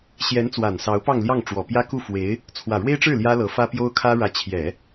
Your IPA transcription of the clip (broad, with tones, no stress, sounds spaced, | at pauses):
ɕ j ɛ˧˥ n t͡s w a˨˩ n s ɑ˧˥ ʊ̯ p ɑ˥˧ ŋ l j ɑ˥˩ ŋ ʈ͡ʂ w ɔ˨˩ p j ä˥ k u˥˩ f w e˧˥ ɪ̯ | t͡sʰ w ä˨˩ ɻ w e˥ ɪ̯ ʈ͡ʂ ɻ̩˥˩ l j ä˥ l ɤ˧˥ f ä˥ p j o˥ ʊ̯ kʰ ä˥ ɻ ä˧˥ t͡ɕʰ j ɛ˨˩˦